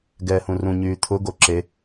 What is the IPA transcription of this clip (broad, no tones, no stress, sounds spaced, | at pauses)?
ɡ ɛː h ũ r ũ ɲ yː t̪ʰ ʊ ɡ o ǁ e